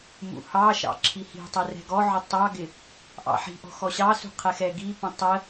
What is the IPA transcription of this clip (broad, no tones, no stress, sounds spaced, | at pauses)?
m ṵ h ɑ ʃ ɑ̰ ǁʰ i h i̤ tˤ ɛ r ɛ̤ ɡ ɔ ʕ ʊ tˤ ɑ ɡ ɪ | ʔ ɑ̰ ħ i̤ ʔ ɔ̤ x ɔ ɕ ɑ s ṳ qʰ ɛ x ɛ ɡ i p ə̃ tˤ ə